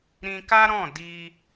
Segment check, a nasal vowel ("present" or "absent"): present